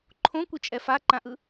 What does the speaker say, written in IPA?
ǃʰ õ kʷ i t͡ʃʼ ɛ f a ǃ ã ʔ ɯ

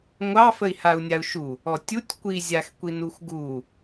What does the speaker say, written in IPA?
ŋʷ ɑ f ə i̯ h a u̯ nʲ a u̯ ʃ u | ɔ tʲ u tʲ kʷ i zʲ a x kʷ i n u x ɡ u

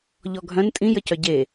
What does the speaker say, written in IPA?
ʎ ɔ ɡʱ œ̃ n tʼ ĩ j ə c œ ɟ e

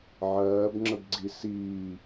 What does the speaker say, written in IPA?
ʕ ɜː b ŋ͡ǁ ə b ɡ͡ǀ i s iː

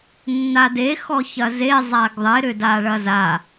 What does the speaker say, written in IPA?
nː a d e x ɔ ç ɐ z e zˤ a ɡ ðˤ ɪ ɾ ʏ d a ɭ ɐ z a

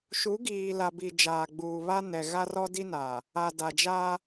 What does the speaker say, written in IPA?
ʃ u˨˦ ɡ iː˨ l a˨ b i˨ d͡ʒ aː˨ ɡ͡b uː˨ β a˦ n ɛ˨ ɣ a˦ r ɔ˦ d i˦ n aː˨ | a˨ d a˨ d͡ʒ aː˦

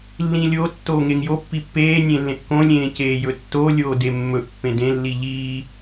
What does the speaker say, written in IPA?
lː ĩ lʲ o tː oː ŋ e ŋ j o pː i pː eː nʲ ẽ lː ẽ ʔ k õ lʲ ẽː c eː j ɵ tː o lʲ oː d e mː ɵ ʔ pː ẽ d ẽ lː i ʎ iː

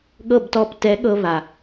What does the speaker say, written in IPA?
ɠ ɤ˥˧ b t ɔ˥˧ p t ɛ˧˥ ɠ ɤ˧ β a˩

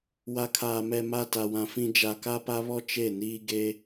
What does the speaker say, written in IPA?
w a˨ kʰ aː˨ m ɛ˨ m a˦˨ t a˨ w ã˨ f ĩ˦ d͡ʒ a˨ k a˦ p a˦ β ɔ˦ t͡ʃ e˦˨ n iː˦ ɡ e˦

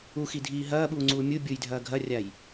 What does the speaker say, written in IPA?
u x i dʱ iː ɦ ɐː ɓ uː ŋ͡ǀ uː mʲ u bʲ u j dʱ ɐː ɡʱ ɐ rʲ a j

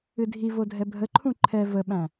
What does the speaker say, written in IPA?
ɨ dʱ i v o dʱ ɛ bʱ ə ǃʰ ũ ǃʰ ɛ v ə ɓ æ̃

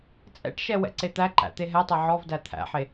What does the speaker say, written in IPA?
t͡sʼ ɛ̰ ʈ ʃ ɛ w ɛ̰ ǀ e t̪ æ ǃ æ̰ t̪ e ɦ ɛ tˤ ɛ ʕ ɔ v d æ t̪ʰ æ̰ ħ e

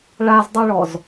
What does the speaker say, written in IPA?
ɭ a z dˤ u ɭ ɔ z

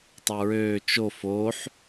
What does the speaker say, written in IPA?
tˤ o ɹ øː t͡ʃ o f o ħ

